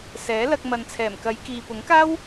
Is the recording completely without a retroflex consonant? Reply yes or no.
yes